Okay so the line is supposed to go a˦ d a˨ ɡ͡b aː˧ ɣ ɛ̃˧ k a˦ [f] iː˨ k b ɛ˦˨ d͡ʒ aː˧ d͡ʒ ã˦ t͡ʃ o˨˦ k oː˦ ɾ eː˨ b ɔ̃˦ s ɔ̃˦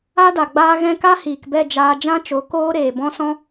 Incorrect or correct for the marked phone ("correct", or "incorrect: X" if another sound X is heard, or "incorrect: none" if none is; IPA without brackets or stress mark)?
incorrect: h